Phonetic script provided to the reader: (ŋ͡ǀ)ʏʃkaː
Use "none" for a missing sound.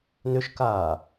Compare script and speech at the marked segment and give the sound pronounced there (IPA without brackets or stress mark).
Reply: n